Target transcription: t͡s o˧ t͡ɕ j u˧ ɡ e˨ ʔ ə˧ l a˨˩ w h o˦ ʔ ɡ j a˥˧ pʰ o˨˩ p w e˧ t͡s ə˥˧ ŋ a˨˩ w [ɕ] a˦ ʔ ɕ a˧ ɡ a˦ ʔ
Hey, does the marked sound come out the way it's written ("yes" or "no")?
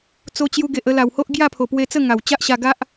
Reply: no